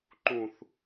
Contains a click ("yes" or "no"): yes